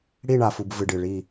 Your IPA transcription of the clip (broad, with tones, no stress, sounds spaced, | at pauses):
ɽ i˦˨ ɳ a˨ f u˨ b v ɨ˨ ɖ ɨ˨ ɭ i˦˨